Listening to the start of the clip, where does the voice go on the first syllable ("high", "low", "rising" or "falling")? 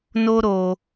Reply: high